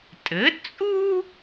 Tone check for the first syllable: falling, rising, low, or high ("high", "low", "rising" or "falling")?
rising